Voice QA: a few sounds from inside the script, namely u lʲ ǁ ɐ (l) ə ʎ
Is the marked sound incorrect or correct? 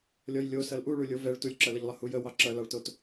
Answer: correct